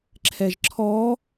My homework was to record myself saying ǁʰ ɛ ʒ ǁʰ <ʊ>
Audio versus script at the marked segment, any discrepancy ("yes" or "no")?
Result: yes